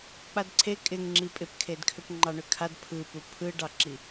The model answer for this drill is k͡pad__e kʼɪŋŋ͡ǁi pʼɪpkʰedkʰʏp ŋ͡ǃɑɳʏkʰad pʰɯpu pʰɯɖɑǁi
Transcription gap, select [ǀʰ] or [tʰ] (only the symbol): ǀʰ